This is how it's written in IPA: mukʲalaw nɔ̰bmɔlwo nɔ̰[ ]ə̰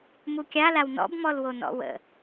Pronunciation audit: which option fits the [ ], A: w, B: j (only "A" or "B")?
A